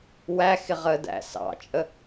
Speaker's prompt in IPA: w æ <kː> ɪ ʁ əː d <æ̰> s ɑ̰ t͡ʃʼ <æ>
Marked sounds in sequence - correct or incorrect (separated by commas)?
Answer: incorrect, correct, incorrect